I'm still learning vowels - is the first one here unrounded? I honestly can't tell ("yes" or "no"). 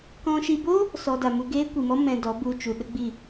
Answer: no